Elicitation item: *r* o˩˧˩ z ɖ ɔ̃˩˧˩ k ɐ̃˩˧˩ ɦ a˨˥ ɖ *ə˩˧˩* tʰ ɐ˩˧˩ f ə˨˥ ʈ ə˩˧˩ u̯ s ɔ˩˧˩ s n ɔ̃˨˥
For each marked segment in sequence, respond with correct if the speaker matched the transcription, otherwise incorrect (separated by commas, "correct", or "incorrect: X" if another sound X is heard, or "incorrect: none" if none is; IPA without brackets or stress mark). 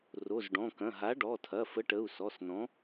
correct, incorrect: ɔ˩˧˩